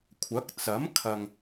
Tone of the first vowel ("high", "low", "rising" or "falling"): rising